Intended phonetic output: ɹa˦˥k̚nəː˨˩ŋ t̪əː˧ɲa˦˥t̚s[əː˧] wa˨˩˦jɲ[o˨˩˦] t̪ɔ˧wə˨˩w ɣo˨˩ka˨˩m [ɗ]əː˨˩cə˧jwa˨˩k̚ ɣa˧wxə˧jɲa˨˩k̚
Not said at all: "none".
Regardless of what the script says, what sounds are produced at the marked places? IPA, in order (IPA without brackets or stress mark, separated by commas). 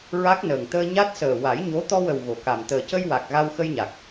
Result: əː˨˩, o˧˥, t̪